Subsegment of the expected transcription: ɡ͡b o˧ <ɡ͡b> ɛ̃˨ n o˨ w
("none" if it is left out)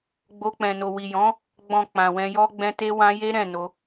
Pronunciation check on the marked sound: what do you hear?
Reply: k͡p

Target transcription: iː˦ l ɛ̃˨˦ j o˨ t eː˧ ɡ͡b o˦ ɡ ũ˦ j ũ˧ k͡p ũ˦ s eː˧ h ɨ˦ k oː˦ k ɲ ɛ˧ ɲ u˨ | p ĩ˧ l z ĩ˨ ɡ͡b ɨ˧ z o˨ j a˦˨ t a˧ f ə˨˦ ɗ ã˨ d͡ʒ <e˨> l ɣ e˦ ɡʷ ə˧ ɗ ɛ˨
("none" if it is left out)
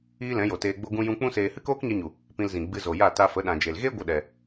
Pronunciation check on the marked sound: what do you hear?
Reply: e˨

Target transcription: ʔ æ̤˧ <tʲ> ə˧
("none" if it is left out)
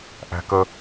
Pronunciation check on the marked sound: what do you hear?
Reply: k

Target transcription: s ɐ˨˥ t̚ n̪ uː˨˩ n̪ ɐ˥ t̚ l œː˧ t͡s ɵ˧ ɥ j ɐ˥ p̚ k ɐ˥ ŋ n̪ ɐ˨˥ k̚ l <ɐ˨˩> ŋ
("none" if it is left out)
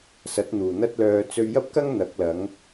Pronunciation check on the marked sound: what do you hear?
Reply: ɐ˨˥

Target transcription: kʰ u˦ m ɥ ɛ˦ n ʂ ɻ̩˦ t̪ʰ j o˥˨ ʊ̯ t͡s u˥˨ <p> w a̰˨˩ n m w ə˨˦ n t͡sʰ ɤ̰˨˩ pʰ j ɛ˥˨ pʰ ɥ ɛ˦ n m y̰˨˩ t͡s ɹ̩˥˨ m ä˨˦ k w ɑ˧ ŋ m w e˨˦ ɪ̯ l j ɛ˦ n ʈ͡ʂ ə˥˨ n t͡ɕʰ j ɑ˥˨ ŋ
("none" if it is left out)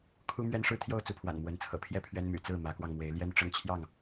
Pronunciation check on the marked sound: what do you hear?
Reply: pʰ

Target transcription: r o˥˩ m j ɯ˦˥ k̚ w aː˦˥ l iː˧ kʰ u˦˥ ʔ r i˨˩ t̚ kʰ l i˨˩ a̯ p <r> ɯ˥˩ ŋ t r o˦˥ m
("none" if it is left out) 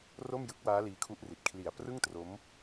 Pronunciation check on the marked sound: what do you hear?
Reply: r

